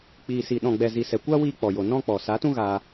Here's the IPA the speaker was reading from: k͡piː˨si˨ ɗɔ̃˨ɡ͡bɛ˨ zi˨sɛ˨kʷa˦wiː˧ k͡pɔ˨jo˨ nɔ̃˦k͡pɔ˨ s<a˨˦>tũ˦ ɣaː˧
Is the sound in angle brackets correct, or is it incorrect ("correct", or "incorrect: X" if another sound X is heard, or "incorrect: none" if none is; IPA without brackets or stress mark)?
correct